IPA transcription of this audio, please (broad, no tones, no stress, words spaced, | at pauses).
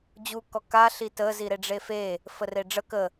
d͡ʑukɔ ka ɬitə ziɾeɖ͡ʐefe | fəreɖ͡ʐə kə